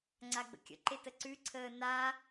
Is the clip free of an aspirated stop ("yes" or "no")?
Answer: no